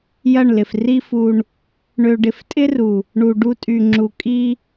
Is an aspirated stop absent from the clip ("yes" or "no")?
yes